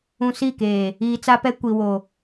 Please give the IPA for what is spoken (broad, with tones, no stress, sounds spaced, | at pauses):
ũ˨ s i˦˨ k eː˨ | iː˨ t͡s a˦ p ɛ˦ kʷ i˨ w o˨